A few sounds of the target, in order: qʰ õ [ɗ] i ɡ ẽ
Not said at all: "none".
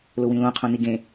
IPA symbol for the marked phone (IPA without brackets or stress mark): n